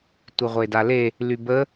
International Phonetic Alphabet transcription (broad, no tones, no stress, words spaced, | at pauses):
tʷiʁʷedale | lybə